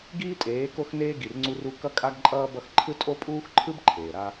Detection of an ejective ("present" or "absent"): present